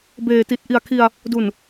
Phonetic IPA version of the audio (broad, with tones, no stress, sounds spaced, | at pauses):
b eː˨˩ t i˨˩ t̚ ʔ i˨˩ a̯ kʰ i˧ a̯ | d u˨˩ n